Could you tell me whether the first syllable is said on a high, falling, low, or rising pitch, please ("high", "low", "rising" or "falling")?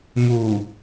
low